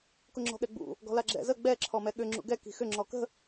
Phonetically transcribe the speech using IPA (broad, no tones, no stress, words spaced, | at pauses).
kʊŋ͡ǁɔ̤ɠɛɡ͡bṵ | ɡɔ̤laɡ͡ǁɛ̰zə ɡ͡bɛ ǁʰɔmɛɠʏ ŋ͡ǁṵɡɛ ki̤xʏ ŋ͡ǁɔkə̤